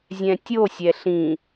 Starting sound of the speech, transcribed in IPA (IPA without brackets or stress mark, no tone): zʲ